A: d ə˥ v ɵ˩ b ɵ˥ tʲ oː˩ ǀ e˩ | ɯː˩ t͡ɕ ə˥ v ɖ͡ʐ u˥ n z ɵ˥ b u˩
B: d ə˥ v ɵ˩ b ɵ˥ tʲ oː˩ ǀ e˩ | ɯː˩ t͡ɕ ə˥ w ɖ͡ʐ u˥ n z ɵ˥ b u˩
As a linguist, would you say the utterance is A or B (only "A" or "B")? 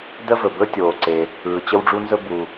B